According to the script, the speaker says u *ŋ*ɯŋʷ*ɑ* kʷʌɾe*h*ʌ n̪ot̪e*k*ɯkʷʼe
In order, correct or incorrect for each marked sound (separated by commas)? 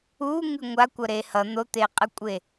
correct, incorrect, correct, incorrect